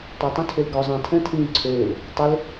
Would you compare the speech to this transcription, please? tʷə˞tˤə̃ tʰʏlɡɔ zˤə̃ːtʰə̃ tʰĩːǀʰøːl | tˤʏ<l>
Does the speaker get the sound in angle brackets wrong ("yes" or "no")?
no